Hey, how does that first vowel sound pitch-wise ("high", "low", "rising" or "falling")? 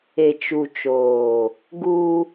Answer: low